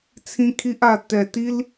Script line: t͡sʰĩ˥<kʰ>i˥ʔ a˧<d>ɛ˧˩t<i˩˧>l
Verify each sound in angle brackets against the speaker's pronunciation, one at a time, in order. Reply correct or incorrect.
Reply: correct, incorrect, incorrect

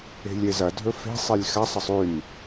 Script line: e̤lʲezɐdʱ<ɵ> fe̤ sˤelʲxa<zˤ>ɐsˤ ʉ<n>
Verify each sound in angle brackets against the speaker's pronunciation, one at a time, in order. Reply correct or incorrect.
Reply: correct, incorrect, correct

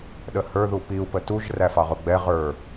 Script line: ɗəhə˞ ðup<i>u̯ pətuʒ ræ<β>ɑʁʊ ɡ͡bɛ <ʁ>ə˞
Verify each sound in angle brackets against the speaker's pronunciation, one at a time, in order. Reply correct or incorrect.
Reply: correct, incorrect, correct

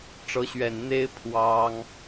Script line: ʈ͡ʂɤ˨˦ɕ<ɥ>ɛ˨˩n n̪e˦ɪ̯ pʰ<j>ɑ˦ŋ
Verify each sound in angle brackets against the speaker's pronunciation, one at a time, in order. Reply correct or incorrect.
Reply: correct, incorrect

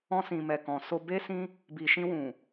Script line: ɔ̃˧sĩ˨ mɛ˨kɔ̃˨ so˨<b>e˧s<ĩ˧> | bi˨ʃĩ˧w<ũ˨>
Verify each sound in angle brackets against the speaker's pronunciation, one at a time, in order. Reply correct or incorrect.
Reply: correct, correct, correct

